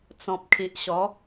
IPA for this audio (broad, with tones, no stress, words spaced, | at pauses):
t͡sɔ̃˨p̚kʰi˨ʔɕɔ˨˦